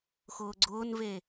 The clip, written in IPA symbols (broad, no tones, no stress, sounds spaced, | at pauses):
x ʊː ɡ͡ǀ ʊː n v e